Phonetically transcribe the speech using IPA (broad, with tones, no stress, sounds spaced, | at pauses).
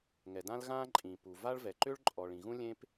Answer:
ŋ ɛ˩ d ã˥ l ɣ ãː˥ ǃʼ ĩ˩ p u˩ v a˥ ɭ v ɛ˩ ǃ ʏ˥ ɭ ǃʼ ɔ˩ ɭ ĩ˩ ɣ ũ˥ lʲ ẽ˥ p